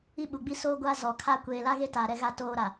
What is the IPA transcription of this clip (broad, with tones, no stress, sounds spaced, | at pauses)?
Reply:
i˦ ɓ u˨ ɡ͡b i˦ s oː˦ ɡʷ a˦ z ɔ˨ kʰ a˦ kʷ eː˨ l a˦ ɣ e˦ t a˨ ɾ ɛ˦ ɣ a˦ t oː˦ ɾ a˨